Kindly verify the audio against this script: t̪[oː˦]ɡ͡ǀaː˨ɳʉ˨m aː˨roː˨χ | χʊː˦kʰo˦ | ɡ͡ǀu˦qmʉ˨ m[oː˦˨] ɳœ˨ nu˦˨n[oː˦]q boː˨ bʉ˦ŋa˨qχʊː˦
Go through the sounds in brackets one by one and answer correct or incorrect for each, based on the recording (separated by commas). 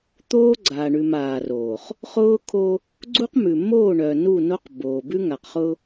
correct, correct, incorrect